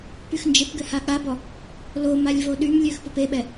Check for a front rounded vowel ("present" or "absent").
present